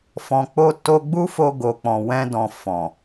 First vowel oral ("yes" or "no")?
no